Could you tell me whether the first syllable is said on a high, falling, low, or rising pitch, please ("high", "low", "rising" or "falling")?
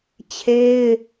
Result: high